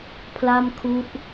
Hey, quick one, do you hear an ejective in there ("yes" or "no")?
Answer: no